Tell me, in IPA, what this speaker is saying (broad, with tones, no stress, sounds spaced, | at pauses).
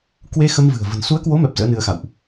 k w e˧ x ə˧ m v ɨ̤˨˩ ə̯ v ə̤˨˩ n s u˨˦ ə̯ k w o˨˦ m ɛ˨˩ p̚ z ə̰ː˧˥ n ɨ˧ ə̯ x a̰˧˨ w ʔ